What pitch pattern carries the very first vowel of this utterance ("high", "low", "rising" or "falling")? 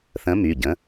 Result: rising